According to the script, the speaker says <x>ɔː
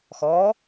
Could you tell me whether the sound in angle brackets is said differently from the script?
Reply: no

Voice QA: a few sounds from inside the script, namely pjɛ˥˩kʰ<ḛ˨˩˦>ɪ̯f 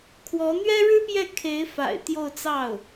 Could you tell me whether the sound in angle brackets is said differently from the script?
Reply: yes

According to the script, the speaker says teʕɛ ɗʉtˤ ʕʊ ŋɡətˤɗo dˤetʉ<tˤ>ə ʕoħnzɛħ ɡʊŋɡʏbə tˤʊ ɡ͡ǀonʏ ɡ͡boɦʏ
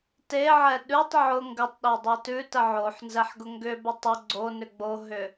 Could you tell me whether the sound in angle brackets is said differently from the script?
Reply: yes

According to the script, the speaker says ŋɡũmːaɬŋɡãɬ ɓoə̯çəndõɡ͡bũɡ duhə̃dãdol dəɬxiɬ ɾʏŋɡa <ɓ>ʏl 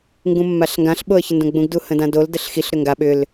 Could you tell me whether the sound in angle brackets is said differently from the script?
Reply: no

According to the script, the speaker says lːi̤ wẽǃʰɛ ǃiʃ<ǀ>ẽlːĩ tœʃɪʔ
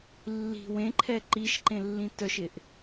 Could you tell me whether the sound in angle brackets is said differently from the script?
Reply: yes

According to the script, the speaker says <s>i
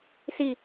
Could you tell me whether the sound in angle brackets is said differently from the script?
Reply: no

